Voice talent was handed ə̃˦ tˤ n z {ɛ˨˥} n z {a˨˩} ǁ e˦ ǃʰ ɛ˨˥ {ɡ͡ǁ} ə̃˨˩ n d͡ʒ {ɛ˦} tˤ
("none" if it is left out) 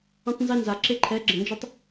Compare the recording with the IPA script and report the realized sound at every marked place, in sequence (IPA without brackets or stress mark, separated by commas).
ɛ˦, a˨˩, ɡ͡ǁ, e˦